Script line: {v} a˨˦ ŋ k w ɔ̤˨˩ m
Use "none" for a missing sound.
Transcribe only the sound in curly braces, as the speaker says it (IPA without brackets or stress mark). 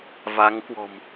v